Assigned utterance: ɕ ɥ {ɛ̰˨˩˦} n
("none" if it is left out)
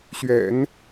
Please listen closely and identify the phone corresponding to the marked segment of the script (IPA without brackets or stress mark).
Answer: ɛ̰˨˩˦